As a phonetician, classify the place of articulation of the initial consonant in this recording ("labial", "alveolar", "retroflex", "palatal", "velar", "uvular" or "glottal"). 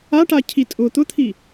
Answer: retroflex